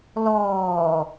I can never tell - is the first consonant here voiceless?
no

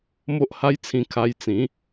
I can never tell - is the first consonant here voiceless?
no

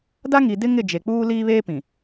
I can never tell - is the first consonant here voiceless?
no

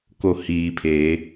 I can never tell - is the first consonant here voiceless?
yes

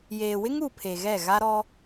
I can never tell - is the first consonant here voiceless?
no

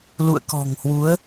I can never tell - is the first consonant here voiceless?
no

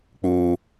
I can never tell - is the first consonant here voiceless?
yes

